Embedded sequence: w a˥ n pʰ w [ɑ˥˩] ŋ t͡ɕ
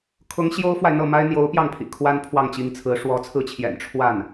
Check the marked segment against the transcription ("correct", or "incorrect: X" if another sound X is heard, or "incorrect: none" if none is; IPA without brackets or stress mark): correct